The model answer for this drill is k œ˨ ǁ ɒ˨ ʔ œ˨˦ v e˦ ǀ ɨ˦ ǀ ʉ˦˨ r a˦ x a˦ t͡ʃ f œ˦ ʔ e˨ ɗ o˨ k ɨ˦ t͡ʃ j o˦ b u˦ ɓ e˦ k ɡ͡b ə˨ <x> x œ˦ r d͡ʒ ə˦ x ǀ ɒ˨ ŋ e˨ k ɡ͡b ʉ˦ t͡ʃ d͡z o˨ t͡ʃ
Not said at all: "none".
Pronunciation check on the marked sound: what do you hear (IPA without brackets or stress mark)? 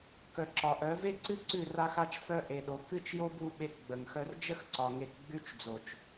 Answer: ŋ